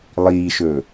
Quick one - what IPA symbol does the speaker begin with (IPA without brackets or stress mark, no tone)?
lˠ